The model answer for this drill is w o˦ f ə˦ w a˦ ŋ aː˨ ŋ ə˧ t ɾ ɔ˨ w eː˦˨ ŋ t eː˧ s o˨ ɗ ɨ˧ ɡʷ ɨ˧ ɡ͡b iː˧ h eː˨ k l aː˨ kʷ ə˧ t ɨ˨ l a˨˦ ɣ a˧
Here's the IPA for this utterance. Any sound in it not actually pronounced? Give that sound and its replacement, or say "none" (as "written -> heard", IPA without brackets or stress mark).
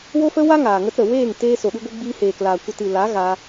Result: ɔ˨ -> ə˨